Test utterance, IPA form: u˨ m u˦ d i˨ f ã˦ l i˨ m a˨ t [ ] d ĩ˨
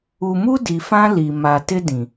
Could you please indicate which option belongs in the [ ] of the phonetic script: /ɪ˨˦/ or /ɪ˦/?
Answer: ɪ˦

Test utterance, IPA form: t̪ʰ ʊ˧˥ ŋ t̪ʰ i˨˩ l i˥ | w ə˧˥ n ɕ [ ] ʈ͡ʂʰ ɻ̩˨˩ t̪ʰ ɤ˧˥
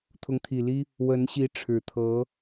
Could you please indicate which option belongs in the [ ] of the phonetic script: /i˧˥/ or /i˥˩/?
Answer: i˧˥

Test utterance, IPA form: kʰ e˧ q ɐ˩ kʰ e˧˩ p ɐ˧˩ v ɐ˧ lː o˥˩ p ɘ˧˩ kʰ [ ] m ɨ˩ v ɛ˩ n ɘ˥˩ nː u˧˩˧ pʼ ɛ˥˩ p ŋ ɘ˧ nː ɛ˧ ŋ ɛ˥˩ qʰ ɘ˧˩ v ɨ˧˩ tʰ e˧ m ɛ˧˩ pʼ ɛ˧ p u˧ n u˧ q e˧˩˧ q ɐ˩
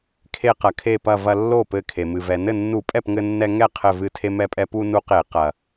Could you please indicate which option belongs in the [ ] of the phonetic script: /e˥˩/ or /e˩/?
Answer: e˩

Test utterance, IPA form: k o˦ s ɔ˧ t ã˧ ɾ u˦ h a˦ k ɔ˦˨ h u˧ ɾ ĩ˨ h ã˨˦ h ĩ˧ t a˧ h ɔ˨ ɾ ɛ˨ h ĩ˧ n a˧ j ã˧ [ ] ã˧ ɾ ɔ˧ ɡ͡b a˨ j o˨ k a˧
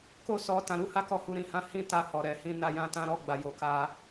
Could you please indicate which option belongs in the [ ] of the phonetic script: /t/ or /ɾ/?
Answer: t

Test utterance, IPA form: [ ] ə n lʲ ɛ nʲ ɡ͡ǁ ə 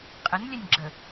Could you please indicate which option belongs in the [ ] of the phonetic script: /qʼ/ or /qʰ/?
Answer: qʼ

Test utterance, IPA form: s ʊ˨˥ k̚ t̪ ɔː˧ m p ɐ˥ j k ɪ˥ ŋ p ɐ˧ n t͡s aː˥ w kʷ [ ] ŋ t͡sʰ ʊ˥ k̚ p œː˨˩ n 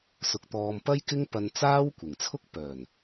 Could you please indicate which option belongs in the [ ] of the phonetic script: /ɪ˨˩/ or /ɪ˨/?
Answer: ɪ˨˩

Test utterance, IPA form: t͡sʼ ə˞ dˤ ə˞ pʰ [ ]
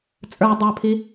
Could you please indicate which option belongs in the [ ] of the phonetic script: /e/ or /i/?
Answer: i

